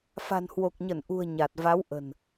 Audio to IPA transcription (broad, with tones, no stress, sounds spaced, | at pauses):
f a̤˨˩ n h w o˨˩ k̚ ɲ ə˧˩ n ʔ ṳ˨˩ ə̯ ɲ a˨˩ t̚ v a˨˦ w ʔ ə̤˨˩ n